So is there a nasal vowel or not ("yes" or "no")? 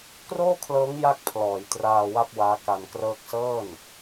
no